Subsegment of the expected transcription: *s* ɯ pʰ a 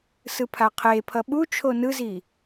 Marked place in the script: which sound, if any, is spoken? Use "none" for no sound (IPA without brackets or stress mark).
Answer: s